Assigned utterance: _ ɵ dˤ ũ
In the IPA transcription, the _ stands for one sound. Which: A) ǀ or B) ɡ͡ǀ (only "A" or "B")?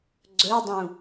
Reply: B